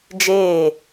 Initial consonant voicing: voiced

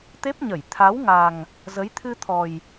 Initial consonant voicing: voiceless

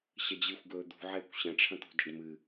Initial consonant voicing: voiceless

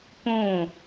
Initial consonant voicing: voiceless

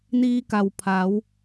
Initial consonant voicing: voiced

